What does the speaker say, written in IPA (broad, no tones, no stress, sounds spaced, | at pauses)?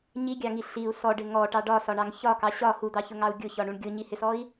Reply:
ɲ i ɡʲ ɑ ŋ i ɬ i u̯ s ɔ ɖ ɪ ŋ ɔ ʈ ɑ ɖ ɒ s ɒ ɳ ɑ ŋ ç ɒ k ɑ ɕ ɒ h u d̪ ɑ ç ʊ ŋ ɑ u̯ ɡʲ ʊ ç ɒ ɳ u ɳ ɡʲ ʊ ɲ i h ɪ s ɔ i̯